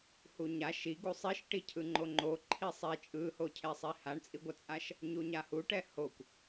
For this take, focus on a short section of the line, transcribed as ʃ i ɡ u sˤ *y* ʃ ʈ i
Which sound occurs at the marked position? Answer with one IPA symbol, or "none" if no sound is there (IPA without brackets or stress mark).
i